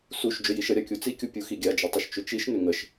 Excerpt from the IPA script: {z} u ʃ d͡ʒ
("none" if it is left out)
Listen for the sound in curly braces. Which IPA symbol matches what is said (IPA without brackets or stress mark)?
s